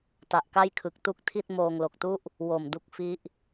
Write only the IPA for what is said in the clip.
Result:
t a˨˩ ʔ k a˥˩ j kʰ ɯ˨˩ k̚ t u˥˩ k̚ tʰ i˥˩ t̚ m oː˧ ŋ l o˨˩ k̚ t u˥˩ ʔ | w o˨˩ m d u˦˥ k̚ f i˦˥ ʔ

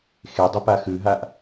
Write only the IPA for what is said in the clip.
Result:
x e dˤ ʏ p a x ʉ ɦ a ʔ

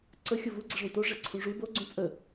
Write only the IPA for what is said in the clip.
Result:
ǀ ə xʲ o v u ɡ͡ǀ ə ʐ ũ t o ʐ ɛ ǀʰ ũ ʐ u b o ɡ͡ǀ ũ t͡sʼ ə

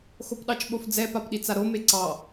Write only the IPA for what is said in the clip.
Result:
x o p ɗ ɑ t͡ʃ ɓ o f d͡z ɛ p a p ɗ i t͡s a ɾ o m e ǀ ɑ

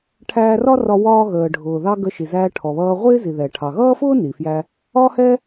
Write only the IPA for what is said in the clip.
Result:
ʈʰ æː˧ r ɒ˥ r ɒ˧ w ɒː˧ ɣ əː˩ ɖʱ ʊː˩ ð ɑ˧ ɡ ə˧ ʃ i˩ z æː˧ ʈʰ ɔ˩ β ʌː˧ ʁʷ ɪː˥ z i˩ ð ɛ˩ ʈʰ ɑ˩ ɣ ʌː˥ f ʊː˥ n i˩ f j æ˧ | ɒ˥ h ɛ˥

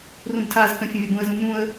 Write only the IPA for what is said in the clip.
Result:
r ũ b tʰ a z k ə̃ fʲ ə̃ vʲ ɒ b ũ ə̯ z ũ m ũ ə̯

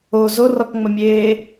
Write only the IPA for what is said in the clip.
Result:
o z o r ɔ k ŋ͡m ə mʲ eː

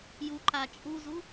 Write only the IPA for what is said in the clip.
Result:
j u ǃ a t͡ʃʼ u z u

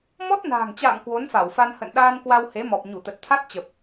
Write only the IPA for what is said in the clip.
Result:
m ɔ˦˥ t̚ n a̤ː˨˩ ŋ t͡ɕ a̰ː˧˨ ŋ k w o˨˦ n f a˧˩ w f a˧ n h ə̰˧˨ n ɗ aː˧ n k w a˧ w h e˨˦ m ɔ˨˩ p̚ ɲ u˧˩ t̪ ə˨˩ t̚ t̪ʰ a˦˥ t̚ t͡ɕ ə˨˩ p̚

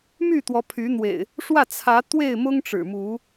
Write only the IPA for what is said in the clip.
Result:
m y˥˨ t̪ w ɔ˨˦ pʰ y˨˦ n̪ w ḛ˨˩ ɪ̯ | ʂ w ä˥˨ t͡sʰ ä˨˦ t̪ w e˥˨ ɪ̯ m ʊ˦ ŋ ʈ͡ʂ ɻ̩˨˩ m u˨˦

